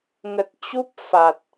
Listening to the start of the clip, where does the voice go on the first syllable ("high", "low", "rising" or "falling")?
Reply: low